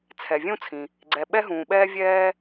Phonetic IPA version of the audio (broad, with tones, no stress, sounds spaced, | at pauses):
t͡sʰ ɛ˩ vʲ ũ˥ t͡sʰ ĩ˩ | ɡ͡ǀ ɛ˩ ɓ ɛ˥ ɦ ũː˩ ɓ ɛː˥ vʲ ɛː˥